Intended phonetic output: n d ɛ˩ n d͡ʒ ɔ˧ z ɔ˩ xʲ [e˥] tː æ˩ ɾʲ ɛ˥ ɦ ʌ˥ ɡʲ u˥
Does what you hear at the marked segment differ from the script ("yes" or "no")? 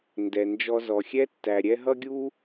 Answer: yes